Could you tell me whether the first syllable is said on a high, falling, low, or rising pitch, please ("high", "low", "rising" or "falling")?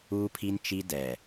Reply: high